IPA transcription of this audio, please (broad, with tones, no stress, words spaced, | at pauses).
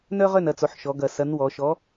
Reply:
nœ˥ʁœ˥˩nɐ˩˧t͡so˩˧ħ ʃɔ˩˧ɡɐ˨˩ sɐ˨˥nwɔ˩˧ ʃɔ˨˥